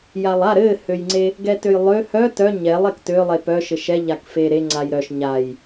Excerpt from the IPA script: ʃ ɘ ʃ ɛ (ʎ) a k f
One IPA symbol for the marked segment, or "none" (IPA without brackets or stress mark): ʎ